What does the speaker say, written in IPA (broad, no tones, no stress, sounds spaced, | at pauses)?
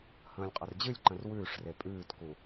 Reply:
h ə̃ː lʲ qʼ ə r d͡ʑ ɨ lʲ ǃ ə̃ r w ʉː ʂ r e pʼ ʉː t k u